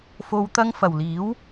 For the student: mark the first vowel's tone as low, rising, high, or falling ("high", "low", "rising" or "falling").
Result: low